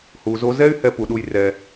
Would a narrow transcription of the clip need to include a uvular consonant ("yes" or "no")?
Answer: no